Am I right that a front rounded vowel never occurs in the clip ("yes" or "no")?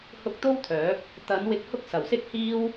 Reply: no